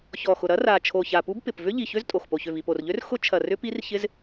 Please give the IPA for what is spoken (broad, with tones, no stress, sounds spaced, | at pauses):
ç ɔ˨˩ x ʊ˨˩ ɾ ɐ˦˥ r a˨˩ t͡ʃʰ o˨˩ ç a˨˩ p u˦˥ b p ɪ˨˩ p v ʏ˦˥ ʎ i˨˩ ç ø˦˥ z tʼ o˨˩ x p o˨˩ ç ø˨˩ v i˨˩ p o˨˩ r ʎ ø˦˥ r x ʊ˦˥ t͡ʃʰ ɐ˨˩ r ʏ˦˥ p i˦˥ r ç ɪ˦˥ z